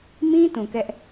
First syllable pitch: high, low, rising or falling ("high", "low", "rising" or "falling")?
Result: high